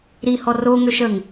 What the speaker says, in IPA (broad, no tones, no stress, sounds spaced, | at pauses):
ɾ i h ɔ r o ŋ ø ʃ ə ŋ